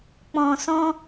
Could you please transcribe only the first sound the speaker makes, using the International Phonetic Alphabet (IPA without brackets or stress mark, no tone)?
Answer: k͡p